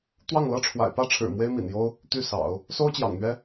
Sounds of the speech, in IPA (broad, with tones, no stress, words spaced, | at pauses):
t̪wɑ˥˩ŋlɤ˥ʈ͡ʂʰwa̰˨˩ɪ̯ pä˥˩ʈ͡ʂʰɻ̩˨˩ mwe˥ɪ̯mḭ˨˩n jo˥ʊ̯ | t̪y˥˩sɑ̰˨˩˦ʊ̯ | so˥ʊ̯t͡ɕjɑ̰˨˩ŋn̪ɥɛ˥